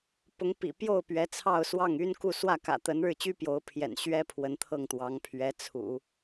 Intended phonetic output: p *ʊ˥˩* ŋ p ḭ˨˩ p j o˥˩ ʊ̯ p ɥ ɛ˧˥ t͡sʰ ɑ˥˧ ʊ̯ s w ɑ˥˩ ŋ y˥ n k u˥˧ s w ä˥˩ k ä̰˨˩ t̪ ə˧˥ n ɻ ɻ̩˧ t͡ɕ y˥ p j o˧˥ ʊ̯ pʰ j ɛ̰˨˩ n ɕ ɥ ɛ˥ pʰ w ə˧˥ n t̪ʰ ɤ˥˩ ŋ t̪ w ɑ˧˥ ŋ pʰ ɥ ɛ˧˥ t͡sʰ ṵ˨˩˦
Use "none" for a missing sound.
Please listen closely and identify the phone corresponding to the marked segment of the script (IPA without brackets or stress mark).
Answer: ʊ˧˥